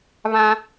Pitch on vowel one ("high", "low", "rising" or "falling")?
high